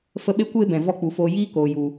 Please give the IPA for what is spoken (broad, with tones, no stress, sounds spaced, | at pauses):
f ə˧ ɓ e˦ kʷ eː˦ b ɛ̃˨ v ɔ˦ k͡p u˨ f oː˧ j iː˦ k oː˨ j u˨